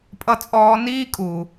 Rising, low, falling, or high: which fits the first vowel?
high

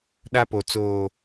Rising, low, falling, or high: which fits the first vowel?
high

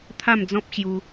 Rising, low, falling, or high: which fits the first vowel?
falling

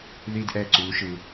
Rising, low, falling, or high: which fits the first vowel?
high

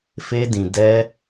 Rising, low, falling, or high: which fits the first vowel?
high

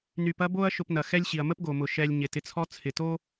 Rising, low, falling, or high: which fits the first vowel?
low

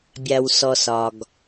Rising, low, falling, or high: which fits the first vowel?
low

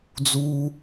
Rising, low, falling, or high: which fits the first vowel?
high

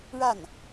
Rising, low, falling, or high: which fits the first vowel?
falling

